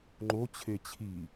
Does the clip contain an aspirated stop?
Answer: yes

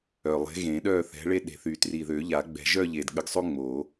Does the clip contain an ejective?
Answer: no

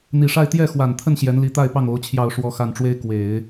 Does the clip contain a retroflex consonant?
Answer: yes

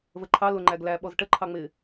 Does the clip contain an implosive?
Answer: yes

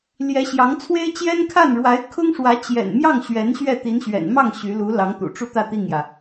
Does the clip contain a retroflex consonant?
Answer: yes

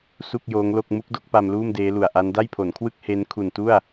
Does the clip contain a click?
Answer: no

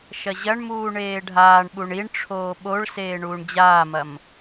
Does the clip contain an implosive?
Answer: yes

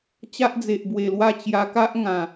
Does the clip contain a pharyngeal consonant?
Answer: no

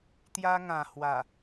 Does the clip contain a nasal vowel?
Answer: yes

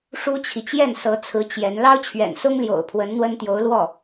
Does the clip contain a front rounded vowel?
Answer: no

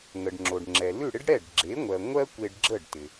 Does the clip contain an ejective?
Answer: no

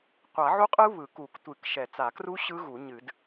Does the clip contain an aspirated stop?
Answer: no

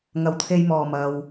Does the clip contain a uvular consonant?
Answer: no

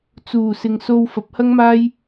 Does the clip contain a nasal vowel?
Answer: no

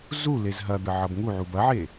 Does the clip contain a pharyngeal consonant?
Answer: yes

